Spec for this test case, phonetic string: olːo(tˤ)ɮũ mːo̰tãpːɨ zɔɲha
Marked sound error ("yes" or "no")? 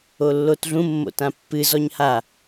yes